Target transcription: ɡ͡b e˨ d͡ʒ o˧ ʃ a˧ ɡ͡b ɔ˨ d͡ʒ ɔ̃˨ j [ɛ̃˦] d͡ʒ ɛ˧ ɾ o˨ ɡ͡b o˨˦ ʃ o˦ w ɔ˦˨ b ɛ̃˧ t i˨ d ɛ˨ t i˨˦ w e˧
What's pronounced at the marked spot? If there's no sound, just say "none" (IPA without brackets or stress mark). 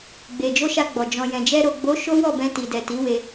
ɛ̃˨